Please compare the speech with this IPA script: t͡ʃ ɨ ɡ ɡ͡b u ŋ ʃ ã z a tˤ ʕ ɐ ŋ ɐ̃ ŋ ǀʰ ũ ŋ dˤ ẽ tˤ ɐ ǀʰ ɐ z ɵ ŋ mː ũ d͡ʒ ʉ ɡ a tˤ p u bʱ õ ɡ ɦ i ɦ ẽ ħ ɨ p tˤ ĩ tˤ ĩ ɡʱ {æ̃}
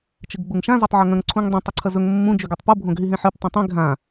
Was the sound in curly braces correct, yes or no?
no